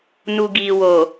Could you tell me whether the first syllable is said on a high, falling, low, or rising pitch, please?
low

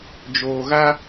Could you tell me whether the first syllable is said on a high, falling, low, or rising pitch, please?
low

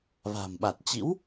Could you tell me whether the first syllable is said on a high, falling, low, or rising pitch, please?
low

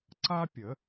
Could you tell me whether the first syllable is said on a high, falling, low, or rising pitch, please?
high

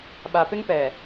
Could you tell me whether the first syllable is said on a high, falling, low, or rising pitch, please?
low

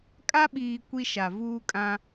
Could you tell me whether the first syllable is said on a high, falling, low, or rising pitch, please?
high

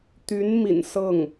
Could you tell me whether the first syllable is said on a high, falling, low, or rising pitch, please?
rising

